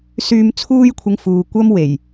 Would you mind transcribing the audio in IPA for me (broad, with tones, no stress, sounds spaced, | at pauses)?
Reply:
s yː˧ m t͡sʰ uː˥ j kʷʰ ɪ˧ ŋ f uː˨ kʷ ɐ˥ m w e˨˩ j